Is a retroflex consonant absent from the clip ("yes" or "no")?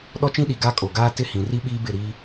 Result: yes